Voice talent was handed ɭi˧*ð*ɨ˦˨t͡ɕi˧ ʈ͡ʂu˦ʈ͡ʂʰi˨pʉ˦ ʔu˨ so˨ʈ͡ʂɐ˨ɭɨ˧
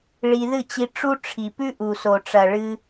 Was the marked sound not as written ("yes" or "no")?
no